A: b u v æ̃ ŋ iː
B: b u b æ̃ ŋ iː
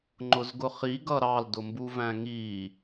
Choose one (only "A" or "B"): A